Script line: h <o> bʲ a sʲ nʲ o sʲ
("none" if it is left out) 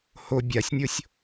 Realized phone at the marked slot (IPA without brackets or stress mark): o